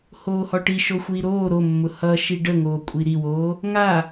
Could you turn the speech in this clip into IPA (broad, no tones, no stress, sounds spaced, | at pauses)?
h oː h ɔ ʈ i ʃ o xʷ iː ɾ oː ɾ o mː ʊ h ʌ ʃ i ɖ ə ŋ oː kʷʼ i ɾ i w oː | ŋ a